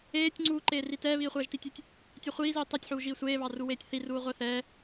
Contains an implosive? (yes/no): no